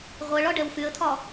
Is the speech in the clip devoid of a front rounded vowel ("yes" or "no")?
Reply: no